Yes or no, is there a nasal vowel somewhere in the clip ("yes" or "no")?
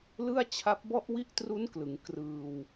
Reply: no